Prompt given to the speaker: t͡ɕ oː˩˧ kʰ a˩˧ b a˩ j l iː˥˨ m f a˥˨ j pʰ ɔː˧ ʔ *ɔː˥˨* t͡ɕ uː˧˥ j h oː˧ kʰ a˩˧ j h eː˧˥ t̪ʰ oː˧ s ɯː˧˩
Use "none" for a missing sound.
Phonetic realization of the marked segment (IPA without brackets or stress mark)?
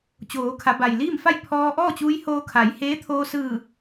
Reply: ɔː˥˨